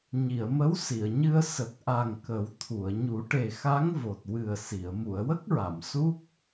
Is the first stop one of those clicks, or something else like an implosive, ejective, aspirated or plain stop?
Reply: plain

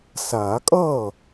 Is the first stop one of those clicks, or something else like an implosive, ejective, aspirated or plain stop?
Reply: ejective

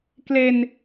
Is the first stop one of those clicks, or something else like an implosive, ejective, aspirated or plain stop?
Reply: plain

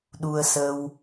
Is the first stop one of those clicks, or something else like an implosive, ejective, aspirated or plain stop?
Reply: implosive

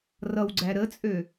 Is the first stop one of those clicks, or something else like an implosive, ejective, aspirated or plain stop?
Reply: click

